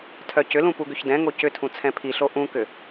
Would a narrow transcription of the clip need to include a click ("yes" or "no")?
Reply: no